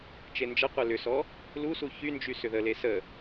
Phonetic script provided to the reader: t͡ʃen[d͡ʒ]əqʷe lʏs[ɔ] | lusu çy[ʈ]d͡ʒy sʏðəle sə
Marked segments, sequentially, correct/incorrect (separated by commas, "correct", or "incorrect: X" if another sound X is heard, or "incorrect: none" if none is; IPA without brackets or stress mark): correct, correct, incorrect: n